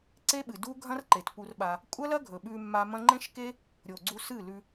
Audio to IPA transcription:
ǀ e˦ ɓ ɨ˨ d u˦ ɡʱ ɐ̃˦ r ǃ e˨ t p u˧ r ɓ a˧ | kʷʼ ɐ˦ l ɐ˦ ɡʱ ɵ˨ ɓ ʉ˧ mː a˧ m ɐ̃˦ ŋ͡ǃ ẽ˦ ʃ k e˦ | ɾʲ o˨ ɡ͡ǀ u˧ s ɨ˦˨ l ʉ˧

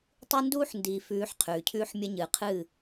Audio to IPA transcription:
tˤ ɨ˦ n d uː˦ ħ n d iː˨ f ʉː˨˦ ħ qʰ ʉː˨ cʰ ʉː˦ ħ mʲ ɐ˦ ɲ ɨː˨ qʰ ɨː˦˨

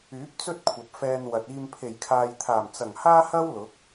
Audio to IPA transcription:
yː˨˥ p̚ t͡s ɵ˥ t̚ kʷʰ ɐ˨ p̚ f ɛː˧ n w ɐ˨ t̚ iː˧ m pʰ e˨˩ j kʰ aː˨ j t̪ʰ aː˨˩ m t͡s ɐ˨˩ ŋ h aː˥ h ɐ˥ w l ʊ˨˥ k̚

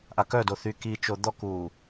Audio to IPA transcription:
ʔ a k œ d o θ y k i t͡ʃ o d̪ ɔ k uː

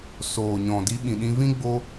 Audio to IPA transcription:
s oː˨ ɲ ɔ̃˨ d i˧ ɓ ĩ˨ ɗ ĩ˧ v ĩ˦ ɡ͡b o˧

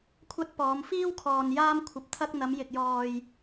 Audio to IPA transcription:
kʷʰ ɐ˧ t̚ p ɔː˨˧ m f iː˥ w kʰ ɔː˨ n j aː˧ m kʷʰ ɐ˨ p̚ t̪ʰ ɐ˧ k̚ n̪ ɐ˨˧ m j ɪ˨ k̚ j ɔː˨ j

